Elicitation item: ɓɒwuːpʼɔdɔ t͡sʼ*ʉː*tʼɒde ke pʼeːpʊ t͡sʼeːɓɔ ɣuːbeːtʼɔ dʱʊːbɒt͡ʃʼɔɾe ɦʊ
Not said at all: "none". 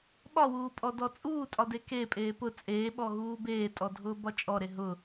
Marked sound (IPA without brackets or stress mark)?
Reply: uː